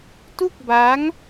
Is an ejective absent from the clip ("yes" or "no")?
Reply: yes